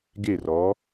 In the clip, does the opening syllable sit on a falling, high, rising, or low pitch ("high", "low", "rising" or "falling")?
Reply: falling